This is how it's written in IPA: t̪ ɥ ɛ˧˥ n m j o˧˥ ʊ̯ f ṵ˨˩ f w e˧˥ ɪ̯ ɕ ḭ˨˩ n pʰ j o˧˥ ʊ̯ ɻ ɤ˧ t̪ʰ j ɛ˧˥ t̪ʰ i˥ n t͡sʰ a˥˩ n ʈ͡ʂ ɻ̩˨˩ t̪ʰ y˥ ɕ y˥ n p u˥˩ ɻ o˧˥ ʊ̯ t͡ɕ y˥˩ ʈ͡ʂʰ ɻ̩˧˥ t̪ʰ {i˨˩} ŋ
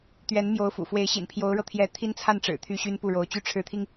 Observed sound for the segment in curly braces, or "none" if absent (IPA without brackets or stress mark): i˧